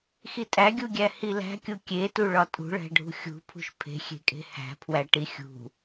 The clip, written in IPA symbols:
x i tʼ æ ɡʲ u ɡʲ æ h i l æ̤ kʲ u kʲ e t u ɭ ɒ tʼ ṳ ɭ æ̤ ɖʱ ṳ xʲ ṳ pʰ ṳ ʃ pʰ e̤ xʲ e̤ kʼ e̤ h æ̤ pʰ w æ ʈ i xʲ ṳ

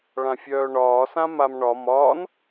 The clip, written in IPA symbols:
ɭ ã fʲ œː ɳ ɒː s ã m a m ɳ ɒ m ɒː n

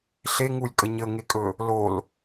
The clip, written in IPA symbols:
ɬ e ŋ u lʲ kʼ ə ɲ ə ŋ e kʼ ɵ | l o l

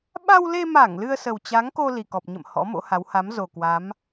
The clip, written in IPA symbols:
ɓ a˧ w l e˧ m a˧˩ ŋ l ɨ˧ ə̯ s ə˨˩ w t͡ɕ a˨˦ ŋ k o˧ l i˨˩ k ɔ˨˩ p̚ ɲ ə̰˧˨ m h ɔ̰˧˥ m o̰˧˥ h a˨˦ w h a˨˦ m z o˨˩ k w a˨˦ m

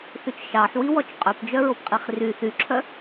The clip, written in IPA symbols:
θ ʉ t͡ʃ ʃ ɑ ħ w i w ɔ t͡ʃ qʼ œ p d͡ʒ œ ɹ o p qʼ i χ r y θ y ǁʰ œ

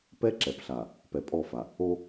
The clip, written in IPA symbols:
p ɛ˦ ǁ ɛ˨ p ɬ a˨ | p ɛ˨ pʼ ɔ˦˨ f a˨ | o˦

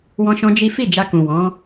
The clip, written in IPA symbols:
w ɔ̃˧ ʃ ɔ̃˧ d͡ʒ i˦ f i˦˨ d͡ʒ a˧ k ũ˨ w ɔ̃˨˦

